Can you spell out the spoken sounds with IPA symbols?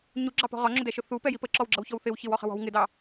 ɲ u ɡ͡ǁ ɑ p ɔ̤ ʁ ɒ ŋ͡ǁ ʊ d ɛ ʃ ʊ θ u p ɛ j i p ə ǁ ɔ w ɡ͡ǁ ʌ w ç ɔ w θ ɪ w ç ɪ w ɔ χ ə̤ w ɔ̤ w ŋ ɪ d ɑ

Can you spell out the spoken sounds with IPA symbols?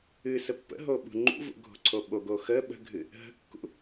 ɨ s ə pː ə̰ ɦ o ɓ ṳ ŋ͡ǃ ṵ v ṵ ɡʱ o̤ ǀʰ o ɓ o ɡ o x ə ɓ ə̤ ɡʱ ɨ | ɦ ə̤ kː ṵ

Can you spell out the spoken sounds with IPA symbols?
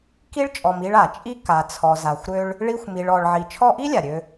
k i˥ ɭ t͡ʃʼ ɔ˨ m i˦ ɭ a˩ t͡ʃʼ i˥ k a˨ t͡sʰ ɔ˨ z a˨ xʷ ɾ ø˥ ɭ | ɭ i˦ xʷ m i˨ ɭ ɔ˨ ɭ ʕ i˨ t͡ʃʰ ɔ˦ ʔ i˥ lʲ a˩ ɾʲ ø˨

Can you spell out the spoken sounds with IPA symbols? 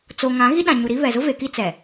t͡s o˨ ŋ ã˨˦ ɣ i˦ ɗ ã˨ ɲ u˨ ɾ i˦ β ɛ˨ z ʊ˦ v e˨ k i˦ t͡s ɛ˨

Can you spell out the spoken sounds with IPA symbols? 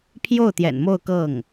pʰ j o˥˩ ʊ̯ t̪ j ɛ̰˨˩ n m o˥˧ ʊ̯ k ɤ˥˩ ŋ

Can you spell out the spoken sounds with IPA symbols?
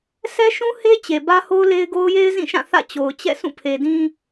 s ɛ˦ ʃ ũ˦ h e˦ t͡ɕ e˨ b ä˦ h o˦ ʊ̯ l e˦ ɪ̯ ɡ o˦ ʊ̯ j e˦ ɪ̯ z ĩ˦˨ ʃ ã˦˨ θ ä̰˦˨ t͡ɕ o˨ ʊ̯ t͡ɕ ɛ̰˦˨ s ũ˦˨ pʰ e˨ d ĩ˦

